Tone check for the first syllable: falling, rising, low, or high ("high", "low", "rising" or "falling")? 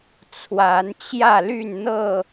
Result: rising